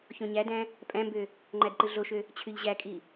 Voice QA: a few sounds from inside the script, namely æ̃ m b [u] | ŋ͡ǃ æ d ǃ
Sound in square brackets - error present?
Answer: yes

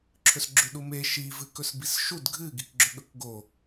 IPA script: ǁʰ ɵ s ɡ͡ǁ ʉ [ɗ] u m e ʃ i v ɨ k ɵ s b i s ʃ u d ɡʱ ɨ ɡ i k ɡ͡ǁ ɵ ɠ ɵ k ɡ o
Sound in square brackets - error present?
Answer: no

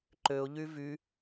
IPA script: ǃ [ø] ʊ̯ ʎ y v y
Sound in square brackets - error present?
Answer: no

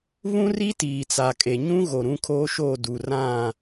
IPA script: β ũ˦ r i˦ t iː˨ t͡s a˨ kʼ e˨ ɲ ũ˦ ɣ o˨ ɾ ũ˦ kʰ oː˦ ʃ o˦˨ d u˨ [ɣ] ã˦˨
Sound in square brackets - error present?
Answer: yes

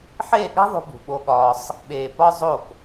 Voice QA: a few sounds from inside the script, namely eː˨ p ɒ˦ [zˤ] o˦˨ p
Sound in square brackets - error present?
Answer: no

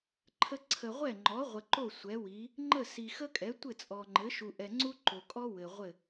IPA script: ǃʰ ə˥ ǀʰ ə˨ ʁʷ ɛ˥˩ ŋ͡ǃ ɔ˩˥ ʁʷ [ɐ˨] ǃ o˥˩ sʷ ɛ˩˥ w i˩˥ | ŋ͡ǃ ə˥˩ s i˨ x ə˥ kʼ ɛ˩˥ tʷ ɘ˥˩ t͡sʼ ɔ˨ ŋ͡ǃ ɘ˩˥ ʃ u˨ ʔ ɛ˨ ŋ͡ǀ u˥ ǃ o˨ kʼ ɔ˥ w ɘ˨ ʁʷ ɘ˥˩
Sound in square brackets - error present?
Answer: yes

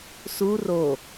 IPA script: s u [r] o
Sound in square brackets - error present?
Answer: no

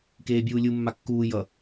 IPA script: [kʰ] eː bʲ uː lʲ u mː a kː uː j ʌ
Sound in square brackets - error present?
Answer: yes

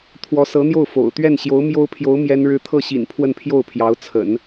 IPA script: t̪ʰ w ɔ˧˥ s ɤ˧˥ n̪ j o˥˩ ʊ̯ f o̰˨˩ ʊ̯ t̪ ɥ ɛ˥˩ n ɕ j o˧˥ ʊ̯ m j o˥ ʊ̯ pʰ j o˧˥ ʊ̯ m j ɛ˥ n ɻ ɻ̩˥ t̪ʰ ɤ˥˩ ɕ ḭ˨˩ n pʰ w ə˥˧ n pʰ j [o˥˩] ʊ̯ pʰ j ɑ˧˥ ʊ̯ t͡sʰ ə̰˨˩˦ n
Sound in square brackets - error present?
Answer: no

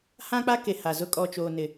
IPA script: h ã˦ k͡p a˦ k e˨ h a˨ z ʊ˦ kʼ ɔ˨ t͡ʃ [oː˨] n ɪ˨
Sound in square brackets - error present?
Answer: no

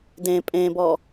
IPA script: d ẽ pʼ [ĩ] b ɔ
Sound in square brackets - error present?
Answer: yes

